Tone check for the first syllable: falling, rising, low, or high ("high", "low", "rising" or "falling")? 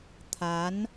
rising